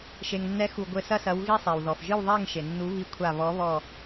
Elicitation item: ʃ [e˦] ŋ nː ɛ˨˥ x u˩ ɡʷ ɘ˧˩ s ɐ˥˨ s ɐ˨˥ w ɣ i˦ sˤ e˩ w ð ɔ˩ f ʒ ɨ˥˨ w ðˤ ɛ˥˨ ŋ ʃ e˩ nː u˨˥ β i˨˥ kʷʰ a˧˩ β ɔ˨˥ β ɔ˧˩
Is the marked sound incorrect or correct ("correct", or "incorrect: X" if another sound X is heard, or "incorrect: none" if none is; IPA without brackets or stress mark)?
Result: incorrect: e˩